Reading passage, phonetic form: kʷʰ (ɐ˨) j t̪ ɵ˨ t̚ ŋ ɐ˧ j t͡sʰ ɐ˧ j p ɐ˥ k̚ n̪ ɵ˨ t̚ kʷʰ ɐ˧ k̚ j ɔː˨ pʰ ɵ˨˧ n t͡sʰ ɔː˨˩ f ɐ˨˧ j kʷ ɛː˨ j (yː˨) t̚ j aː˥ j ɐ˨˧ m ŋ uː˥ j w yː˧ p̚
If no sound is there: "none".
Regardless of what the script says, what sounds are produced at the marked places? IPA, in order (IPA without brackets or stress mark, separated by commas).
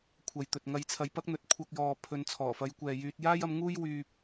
ɐ˨, yː˧